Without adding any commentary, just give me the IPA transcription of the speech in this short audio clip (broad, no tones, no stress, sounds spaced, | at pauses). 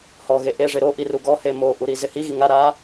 h ɔ ɣ e ʔ e ʐ ɪ ɾ o ʔ i r u ɡ ɔ h e m o ʔ u ɾ i z ɪ h i ɣ i ŋ a ɾ a